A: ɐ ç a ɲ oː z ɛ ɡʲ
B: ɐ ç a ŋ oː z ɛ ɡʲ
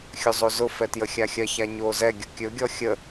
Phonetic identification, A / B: A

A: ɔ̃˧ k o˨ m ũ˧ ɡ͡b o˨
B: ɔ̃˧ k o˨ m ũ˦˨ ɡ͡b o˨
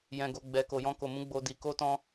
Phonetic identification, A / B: A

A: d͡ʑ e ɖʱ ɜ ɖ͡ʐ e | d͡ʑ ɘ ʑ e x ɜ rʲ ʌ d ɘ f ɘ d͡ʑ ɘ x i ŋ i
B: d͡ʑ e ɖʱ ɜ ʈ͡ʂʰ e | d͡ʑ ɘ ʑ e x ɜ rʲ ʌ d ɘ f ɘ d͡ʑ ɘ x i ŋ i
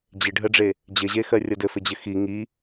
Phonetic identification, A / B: A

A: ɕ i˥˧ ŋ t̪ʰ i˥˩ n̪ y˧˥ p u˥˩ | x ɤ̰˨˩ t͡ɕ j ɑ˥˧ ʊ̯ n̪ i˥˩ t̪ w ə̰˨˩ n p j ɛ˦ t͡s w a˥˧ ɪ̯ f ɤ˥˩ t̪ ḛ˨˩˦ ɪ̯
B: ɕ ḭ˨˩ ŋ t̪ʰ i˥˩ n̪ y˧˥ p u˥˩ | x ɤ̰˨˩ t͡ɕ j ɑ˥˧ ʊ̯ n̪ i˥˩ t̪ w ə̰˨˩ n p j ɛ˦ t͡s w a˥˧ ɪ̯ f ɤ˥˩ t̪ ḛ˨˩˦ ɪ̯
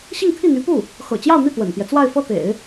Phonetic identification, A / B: A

